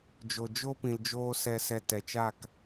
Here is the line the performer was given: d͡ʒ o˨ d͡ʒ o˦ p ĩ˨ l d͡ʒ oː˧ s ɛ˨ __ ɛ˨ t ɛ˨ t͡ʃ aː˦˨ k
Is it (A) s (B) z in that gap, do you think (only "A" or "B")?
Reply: A